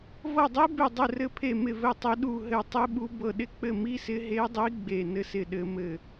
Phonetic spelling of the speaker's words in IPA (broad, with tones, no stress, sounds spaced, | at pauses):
v ɤ˦˨ dˤ i˦˥ b e˦˨ dˤ ɘ˦˨ r ɘ˦˨ pʰ e˦˨ m ɪ˦˨ v ɘ˦˨ tˤ i˦˥ ɗ u˦˨ ɦ ɘ˦˨ tˤ i˦˥ ɓ u˦˥ b ɤ˦˨ ɗ ɪ˦˨ k͡p ɘ˦˨ m i˦˥ s ɪ˦˥ ɦ e˦˥ dˤ i˦˥ ɡ͡b e˦˨ n ɘ˦˥ s ɪ˦˨ ɗ ɘ˦˥ m ɘ˦˨